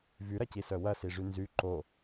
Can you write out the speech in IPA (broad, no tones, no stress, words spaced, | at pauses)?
vyɾɐcisœ wɐsiʐy nzy ǃo